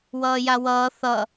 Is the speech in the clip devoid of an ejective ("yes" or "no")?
yes